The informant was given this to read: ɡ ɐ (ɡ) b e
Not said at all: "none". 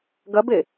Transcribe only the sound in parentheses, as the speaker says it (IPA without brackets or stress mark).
none